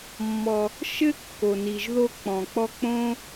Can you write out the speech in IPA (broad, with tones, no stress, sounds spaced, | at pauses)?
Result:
mː ɔ˧ | ʃ ɘ˦ kː o˨ n i˨ ʒ ð o˧ k͡p ɔ̃˨ k͡p ɔ˧ k͡p õ˦